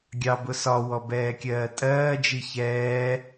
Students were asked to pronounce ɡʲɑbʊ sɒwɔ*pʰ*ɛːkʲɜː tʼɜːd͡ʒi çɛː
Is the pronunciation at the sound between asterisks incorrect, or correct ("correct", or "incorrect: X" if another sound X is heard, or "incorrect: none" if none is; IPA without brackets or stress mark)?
incorrect: b